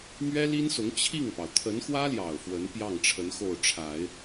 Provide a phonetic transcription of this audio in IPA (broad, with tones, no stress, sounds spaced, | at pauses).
m ɥ ɛ˥ l i˥ n s ʊ˧˥ ŋ t͡ɕʰ i˥˩ ŋ p ɑ˩ ʊ̯ t̪ʰ ə˧˥ n x w ä˥ l j ɑ˨˩ ʊ̯ f w ə˧˥ n p j ɑ˥˩ ŋ ʈ͡ʂʰ ə˧˥ n x o˥˩ ʊ̯ ʈ͡ʂʰ a˨˩˦ ɪ̯